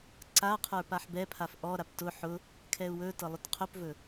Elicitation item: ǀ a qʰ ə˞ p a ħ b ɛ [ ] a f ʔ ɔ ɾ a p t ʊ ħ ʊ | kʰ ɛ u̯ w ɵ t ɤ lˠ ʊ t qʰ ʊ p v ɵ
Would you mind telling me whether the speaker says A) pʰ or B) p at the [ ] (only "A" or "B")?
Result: A